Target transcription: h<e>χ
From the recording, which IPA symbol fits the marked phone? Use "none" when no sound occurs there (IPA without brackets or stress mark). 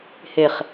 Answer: e